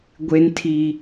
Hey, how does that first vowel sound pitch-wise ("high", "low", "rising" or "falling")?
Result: high